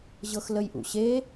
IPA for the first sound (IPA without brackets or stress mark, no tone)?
ʑ